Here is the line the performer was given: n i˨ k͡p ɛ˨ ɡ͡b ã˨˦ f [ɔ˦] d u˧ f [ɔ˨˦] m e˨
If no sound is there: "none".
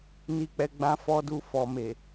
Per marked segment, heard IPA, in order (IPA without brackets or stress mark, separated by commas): ɔ˧, ɔ˨